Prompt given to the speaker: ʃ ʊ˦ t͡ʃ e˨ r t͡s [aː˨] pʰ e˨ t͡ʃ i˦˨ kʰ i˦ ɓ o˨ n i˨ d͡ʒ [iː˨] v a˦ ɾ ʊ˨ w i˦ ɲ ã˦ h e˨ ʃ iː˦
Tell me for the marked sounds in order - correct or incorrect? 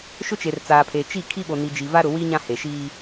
correct, incorrect: i˨

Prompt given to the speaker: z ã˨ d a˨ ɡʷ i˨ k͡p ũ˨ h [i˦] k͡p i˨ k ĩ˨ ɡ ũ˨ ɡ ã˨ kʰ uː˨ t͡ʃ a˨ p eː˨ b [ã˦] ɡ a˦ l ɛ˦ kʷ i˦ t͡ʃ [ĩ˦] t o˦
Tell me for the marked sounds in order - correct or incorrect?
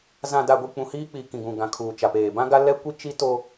incorrect: iː˦, correct, incorrect: i˦

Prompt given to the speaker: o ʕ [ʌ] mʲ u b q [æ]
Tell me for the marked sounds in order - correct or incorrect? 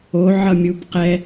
correct, incorrect: ɛ

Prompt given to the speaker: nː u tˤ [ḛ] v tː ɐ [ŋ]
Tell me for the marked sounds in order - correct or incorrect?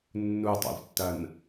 correct, incorrect: n

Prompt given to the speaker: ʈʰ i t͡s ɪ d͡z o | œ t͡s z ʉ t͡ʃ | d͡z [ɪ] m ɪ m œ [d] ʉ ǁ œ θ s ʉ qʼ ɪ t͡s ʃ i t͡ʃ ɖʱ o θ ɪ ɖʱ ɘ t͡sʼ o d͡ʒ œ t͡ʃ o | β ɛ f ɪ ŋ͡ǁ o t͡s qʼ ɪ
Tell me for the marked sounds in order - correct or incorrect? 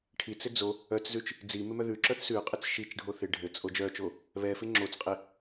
incorrect: i, incorrect: ð

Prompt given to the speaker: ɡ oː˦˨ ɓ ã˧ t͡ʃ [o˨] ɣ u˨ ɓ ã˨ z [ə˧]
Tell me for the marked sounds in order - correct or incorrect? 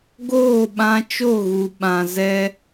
incorrect: o˦˨, incorrect: ɛ˧

